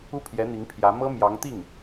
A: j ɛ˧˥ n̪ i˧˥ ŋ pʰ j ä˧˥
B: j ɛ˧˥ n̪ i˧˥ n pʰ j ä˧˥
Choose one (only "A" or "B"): A